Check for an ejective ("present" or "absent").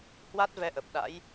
absent